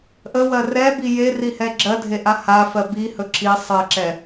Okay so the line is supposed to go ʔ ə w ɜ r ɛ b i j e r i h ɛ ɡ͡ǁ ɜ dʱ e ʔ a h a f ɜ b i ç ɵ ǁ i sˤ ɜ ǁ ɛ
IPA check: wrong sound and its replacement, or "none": ç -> h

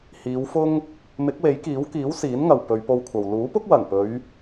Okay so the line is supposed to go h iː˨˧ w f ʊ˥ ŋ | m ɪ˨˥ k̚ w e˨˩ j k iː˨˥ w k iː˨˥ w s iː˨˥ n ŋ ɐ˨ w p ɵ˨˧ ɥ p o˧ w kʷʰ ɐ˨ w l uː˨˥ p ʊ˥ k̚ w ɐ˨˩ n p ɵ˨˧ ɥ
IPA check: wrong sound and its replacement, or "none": e˨˩ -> e˨˥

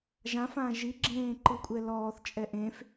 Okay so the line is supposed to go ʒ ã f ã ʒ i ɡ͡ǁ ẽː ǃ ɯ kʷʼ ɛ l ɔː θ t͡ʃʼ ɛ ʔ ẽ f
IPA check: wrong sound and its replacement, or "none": none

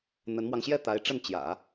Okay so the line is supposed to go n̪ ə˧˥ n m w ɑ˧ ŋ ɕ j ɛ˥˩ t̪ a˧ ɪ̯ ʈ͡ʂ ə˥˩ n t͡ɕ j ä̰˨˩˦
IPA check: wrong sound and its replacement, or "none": a˧ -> a˧˥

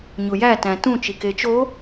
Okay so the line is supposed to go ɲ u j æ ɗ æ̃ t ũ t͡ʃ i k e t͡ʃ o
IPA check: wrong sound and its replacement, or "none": ɗ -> t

